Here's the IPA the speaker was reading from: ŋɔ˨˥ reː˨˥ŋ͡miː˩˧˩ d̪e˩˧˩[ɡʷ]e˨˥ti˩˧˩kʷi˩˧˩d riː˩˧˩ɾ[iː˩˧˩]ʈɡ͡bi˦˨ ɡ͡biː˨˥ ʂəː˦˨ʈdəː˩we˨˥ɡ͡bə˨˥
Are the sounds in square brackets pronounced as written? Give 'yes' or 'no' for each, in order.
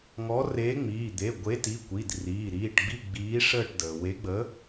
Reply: yes, yes

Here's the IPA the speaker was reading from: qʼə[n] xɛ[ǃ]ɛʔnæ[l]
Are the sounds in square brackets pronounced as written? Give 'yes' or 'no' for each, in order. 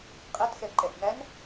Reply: no, yes, no

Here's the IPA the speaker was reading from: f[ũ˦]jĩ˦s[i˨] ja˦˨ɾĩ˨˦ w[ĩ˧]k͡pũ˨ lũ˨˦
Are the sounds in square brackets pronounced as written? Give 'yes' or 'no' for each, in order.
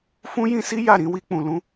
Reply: yes, no, no

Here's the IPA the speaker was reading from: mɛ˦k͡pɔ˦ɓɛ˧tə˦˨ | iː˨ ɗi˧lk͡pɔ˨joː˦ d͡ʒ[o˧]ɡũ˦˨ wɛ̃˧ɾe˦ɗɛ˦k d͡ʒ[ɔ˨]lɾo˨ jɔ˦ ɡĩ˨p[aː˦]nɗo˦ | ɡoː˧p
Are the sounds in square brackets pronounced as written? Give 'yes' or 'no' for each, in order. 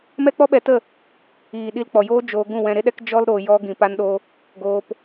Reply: no, no, no

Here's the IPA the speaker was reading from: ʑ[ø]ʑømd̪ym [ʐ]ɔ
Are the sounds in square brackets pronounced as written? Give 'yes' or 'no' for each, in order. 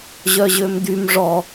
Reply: no, yes

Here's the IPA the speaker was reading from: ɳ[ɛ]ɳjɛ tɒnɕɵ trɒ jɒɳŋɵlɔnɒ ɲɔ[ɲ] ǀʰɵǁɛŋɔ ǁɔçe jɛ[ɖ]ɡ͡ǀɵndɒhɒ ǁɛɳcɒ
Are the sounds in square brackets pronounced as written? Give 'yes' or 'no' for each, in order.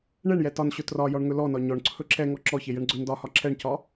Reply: yes, no, no

